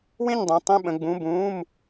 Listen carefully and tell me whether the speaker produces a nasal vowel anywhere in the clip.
yes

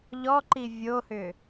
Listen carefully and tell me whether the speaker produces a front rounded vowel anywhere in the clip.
yes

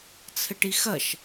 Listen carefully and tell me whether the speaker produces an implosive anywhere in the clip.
no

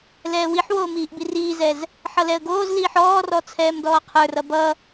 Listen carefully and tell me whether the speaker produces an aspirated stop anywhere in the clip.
yes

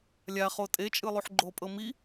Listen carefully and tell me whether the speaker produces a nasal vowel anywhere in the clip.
no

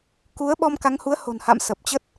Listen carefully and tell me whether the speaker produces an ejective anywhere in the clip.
no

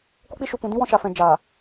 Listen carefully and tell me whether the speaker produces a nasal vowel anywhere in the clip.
yes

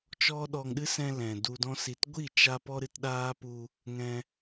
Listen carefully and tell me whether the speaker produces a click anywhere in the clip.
no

